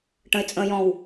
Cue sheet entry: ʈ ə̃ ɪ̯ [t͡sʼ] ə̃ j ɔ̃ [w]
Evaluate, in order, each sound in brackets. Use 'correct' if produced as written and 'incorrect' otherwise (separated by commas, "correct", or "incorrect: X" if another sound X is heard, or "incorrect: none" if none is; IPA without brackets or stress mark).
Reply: correct, correct